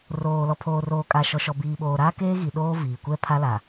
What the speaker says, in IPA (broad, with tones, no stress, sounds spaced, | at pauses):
r oː˨ l ɔ˨ pʰ oː˨ r oː˨ kʼ a˨ ʃ ɔ˨ ʃ ɔ˨ b iː˨ ɓ oː˨ ɾ aː˦ k eː˦ ɣ i˨ ɗ oː˦ v iː˨ kʷ ɛ˦ pʰ a˦ l a˨